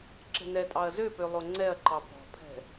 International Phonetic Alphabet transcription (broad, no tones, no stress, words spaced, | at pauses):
ǁɛ̤nɛtʼɑɐ̯ zøpø lˠoŋ͡ǀɛɐ̯ǃɑ pɔ̤pʰɛ̤